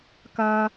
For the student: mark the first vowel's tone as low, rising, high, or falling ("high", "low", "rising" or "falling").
high